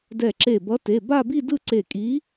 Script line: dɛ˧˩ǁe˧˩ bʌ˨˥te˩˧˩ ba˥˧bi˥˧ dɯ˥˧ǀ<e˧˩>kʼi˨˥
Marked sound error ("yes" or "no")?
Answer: no